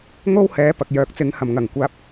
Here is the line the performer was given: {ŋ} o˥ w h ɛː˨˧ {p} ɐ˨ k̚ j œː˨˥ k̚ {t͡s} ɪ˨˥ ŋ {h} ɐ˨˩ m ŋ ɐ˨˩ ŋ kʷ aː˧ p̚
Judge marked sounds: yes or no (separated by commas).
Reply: yes, yes, yes, yes